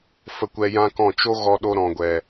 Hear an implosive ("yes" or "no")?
yes